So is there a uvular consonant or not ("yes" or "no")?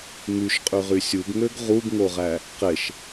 yes